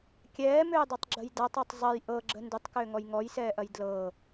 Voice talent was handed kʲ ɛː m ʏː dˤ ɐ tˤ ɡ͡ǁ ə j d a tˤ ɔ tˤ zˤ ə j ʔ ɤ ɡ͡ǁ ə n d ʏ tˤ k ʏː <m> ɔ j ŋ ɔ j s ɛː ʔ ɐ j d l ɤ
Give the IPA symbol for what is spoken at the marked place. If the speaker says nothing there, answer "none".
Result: ŋ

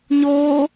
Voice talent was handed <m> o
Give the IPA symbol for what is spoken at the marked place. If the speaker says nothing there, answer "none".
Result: ɲ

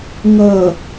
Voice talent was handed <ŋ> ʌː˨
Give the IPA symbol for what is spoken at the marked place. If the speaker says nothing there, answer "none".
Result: ŋ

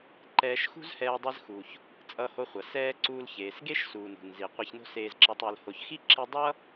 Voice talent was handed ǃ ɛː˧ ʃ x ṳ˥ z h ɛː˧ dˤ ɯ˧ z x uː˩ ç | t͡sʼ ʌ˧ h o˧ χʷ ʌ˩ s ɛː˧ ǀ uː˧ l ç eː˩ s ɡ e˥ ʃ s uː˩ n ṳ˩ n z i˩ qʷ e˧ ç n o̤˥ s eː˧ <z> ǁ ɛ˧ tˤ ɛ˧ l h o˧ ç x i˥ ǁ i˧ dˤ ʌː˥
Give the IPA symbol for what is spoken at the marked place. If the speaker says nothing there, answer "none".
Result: z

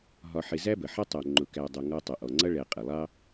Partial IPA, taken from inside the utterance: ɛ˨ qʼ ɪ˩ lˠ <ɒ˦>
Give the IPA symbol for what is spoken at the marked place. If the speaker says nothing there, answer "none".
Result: ɑ˦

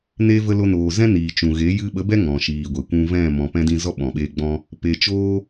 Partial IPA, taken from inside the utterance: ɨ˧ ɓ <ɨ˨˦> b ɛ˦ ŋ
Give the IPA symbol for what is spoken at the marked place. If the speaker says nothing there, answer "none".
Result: ə˨˦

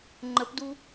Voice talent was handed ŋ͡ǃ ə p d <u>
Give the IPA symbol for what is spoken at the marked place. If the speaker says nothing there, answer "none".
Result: u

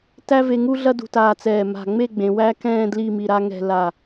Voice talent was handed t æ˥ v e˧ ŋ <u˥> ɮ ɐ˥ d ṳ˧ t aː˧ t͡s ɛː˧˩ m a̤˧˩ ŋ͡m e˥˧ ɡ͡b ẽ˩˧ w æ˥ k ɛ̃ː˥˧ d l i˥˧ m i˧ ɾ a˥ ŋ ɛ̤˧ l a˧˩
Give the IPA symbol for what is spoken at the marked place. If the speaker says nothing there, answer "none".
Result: u˥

